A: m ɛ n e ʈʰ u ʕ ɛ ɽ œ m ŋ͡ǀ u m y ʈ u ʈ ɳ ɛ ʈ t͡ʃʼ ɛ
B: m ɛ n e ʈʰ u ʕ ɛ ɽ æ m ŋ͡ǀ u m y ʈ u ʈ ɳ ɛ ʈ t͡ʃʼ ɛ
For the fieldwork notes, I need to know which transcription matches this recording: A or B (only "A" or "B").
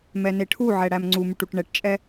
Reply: B